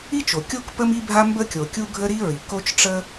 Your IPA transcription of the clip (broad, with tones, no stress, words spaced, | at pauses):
i˥t͡ʃo˩kʲo˥k pə˥mi˥bʱa˥mbə˥ kʲo˩kʲu˥ ɡʱə˥ɾi˥ɹi˩ ko˥t͡ʃʈ͡ʂə˥